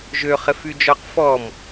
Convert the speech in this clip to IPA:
ʒ ø χ ɪ f y d͡ʒ ɔ q f ɔ m

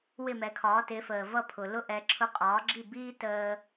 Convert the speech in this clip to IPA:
w ɪ˥˩ m ɛ˩˥ kʰ ɒː˩˥ t ɪ˩˥ f əː˩ v ʌ˥ pʰ ʊ˩ l ʊ˥ ʔ ɛ˩˥ ǁʰ ʊ˧ qʼ ɒː˩˥ ɡ͡ǁ i˥˩ b iː˥ t əː˧

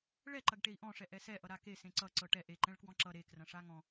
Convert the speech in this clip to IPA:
ɭ ɛ ǃ ɐ ɡ ʈ e i̯ ʔ ɔ̃ ʂ ɛ ʔ ɛ s ɛ ʔ ʌ ɾ a k e s ẽ ǀ ʌ ǀ ɤ ʈ ɛ ʔ e ǃ ɛ̃ ɭ k w ɔ̃ ǁ ʌ ɾ e k r ɐ̃ ʂ a ŋ ɔ̃

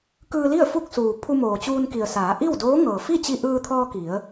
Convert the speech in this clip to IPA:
k ɯː˧ l i˥˨ ə̯ f u˥˨ k̚ s uː˩ pʰ u˧ m oː˩ t͡ɕ uː˧ n k i˩ ə̯ s aː˩˧ ʔ i˥˨ w d oː˧˥ ŋ ɤː˩ f i˥˨ t͡ɕ i˧ ʔ ɯː˧ t̪ʰ ɔː˧ k i˩˧ ə̯

